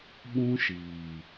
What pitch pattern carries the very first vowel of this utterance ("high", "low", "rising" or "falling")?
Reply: high